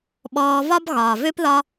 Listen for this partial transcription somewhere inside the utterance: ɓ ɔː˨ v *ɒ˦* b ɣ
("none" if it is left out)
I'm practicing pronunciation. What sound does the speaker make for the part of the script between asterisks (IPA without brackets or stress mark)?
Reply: ɒ˦